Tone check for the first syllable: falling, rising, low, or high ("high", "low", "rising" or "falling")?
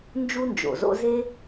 high